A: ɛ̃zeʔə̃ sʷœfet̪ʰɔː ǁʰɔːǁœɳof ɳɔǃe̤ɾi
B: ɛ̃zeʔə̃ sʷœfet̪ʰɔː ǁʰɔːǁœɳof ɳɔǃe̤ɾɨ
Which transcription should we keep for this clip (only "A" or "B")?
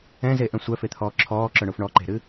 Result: B